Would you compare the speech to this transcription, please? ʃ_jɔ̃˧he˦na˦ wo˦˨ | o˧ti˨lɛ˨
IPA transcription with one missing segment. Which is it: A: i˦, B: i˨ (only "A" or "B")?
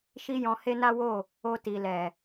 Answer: A